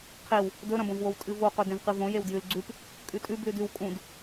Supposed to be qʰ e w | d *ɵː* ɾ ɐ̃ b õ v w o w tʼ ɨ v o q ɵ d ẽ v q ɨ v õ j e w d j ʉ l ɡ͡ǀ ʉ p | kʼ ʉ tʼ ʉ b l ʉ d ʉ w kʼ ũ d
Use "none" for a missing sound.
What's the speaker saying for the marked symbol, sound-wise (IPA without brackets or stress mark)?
ɵ